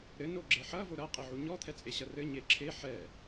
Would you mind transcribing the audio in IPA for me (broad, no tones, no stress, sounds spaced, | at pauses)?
ɾ ɘ n o ɡ͡ǁ e ħ ɐ v o ɾ ɐ qʼ i ʕ u ɲ ɔ t̪ʰ ɛ t͡sʼ e ɕ ɐ r ɘ ɲ e ǁʰ e ħ ɛ